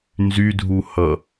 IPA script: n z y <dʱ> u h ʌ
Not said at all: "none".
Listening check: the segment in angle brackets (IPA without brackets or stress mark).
dʱ